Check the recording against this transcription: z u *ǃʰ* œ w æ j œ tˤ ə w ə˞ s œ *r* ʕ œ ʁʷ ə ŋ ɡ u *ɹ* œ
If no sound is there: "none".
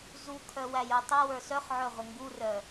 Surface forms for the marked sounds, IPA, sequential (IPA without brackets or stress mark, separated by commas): kʰ, χ, r